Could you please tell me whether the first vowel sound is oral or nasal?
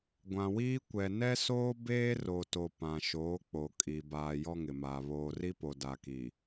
nasal